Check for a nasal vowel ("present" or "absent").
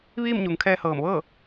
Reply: absent